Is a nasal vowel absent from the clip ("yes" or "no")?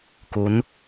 yes